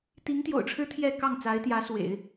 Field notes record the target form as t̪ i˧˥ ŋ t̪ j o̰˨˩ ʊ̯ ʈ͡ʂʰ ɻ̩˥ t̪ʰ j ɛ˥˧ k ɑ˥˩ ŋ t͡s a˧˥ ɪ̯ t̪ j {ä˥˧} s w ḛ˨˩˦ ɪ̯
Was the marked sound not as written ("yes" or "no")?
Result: yes